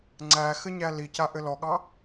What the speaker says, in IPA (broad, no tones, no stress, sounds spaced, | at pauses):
ŋ͡ǀ æ x ɘ ɲ æ l i c a ʔ ɘ l ɔ ɠ ɑ